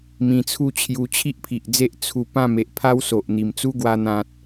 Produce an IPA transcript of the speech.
m ĩ˧ t͡sʰ u˦ t͡ɕʰ j u˧ t͡ɕʰ i˦ ʔ pʰ i˨ ʔ d͡z e˦ ʔ t͡sʰ u˧ p ã˥˧ m e˨ ʔ pʰ a˦ w s o˨ ʔ n̪ i˨˩ m t͡s u˦ ɡ w a˧ n̪ ã˨ t̚

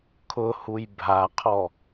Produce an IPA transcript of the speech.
kʰ ʊ h u j bʱ a qʰ ɔ

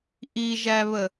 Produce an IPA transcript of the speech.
ʔ i ʒ æ β ə

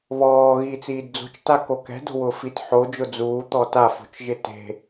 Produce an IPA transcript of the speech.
β ɔː ɣ iː t͡s iː d d͡z o̤ t͡ʃ t a k o k ɛ̤ d o̤ w ʊː f i t ħ o d͡ʒ ʊ d͡z uː t̪ ɔ t a f o̤ t͡ʃ ʒ ɪ t e̤

